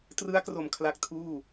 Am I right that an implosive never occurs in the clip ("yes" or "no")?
yes